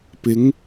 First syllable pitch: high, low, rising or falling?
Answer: rising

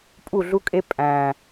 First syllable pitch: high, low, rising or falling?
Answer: falling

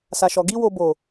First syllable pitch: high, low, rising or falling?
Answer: low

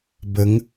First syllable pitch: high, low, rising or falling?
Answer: rising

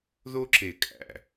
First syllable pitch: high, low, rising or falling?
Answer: high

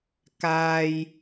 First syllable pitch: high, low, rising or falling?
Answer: high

